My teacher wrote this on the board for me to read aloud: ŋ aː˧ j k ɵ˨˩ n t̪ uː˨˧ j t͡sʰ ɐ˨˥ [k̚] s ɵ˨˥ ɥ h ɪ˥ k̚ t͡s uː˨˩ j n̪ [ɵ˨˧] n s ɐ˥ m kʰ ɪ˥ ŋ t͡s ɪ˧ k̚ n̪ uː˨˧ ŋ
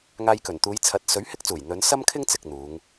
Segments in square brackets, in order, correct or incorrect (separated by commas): incorrect, correct